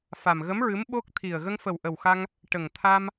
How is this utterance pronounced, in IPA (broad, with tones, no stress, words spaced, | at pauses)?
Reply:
fa˨˩m ɣə˧˥mɹɨ˧˥m ɓo˦˥k̚t̪ʰi˨˩ə̯ ɣə˧ŋfə˨˩w ʔə˨˩wxa˧ŋ | ʈə˨˩ŋ t̪ʰa˧m